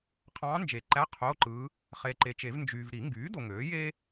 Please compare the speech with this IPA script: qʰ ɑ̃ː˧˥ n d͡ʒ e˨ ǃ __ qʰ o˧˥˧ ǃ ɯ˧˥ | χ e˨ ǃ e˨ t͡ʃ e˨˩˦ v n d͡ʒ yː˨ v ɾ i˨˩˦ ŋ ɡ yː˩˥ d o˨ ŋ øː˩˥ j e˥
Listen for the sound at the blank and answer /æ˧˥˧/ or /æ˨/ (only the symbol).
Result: æ˧˥˧